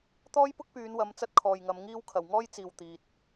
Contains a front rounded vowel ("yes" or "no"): yes